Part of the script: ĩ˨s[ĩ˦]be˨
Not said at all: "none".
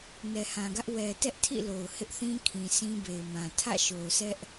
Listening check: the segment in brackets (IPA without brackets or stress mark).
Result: ĩ˦